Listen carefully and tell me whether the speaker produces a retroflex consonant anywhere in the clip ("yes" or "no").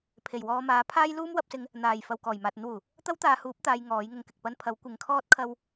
no